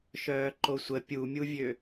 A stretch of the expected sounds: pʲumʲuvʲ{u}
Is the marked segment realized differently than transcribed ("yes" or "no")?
yes